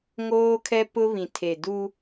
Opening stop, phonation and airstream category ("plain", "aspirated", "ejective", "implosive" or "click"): aspirated